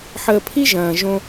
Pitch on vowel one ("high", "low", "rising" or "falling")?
low